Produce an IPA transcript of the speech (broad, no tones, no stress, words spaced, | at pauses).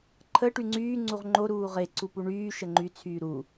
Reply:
ǃʰə ʈyŋ͡ǀyː ŋ͡ǀuʁŋ͡ǃo ɾuːʁe ǀupuɳyː ʃəŋ͡ǃy t͡sʰyːɾu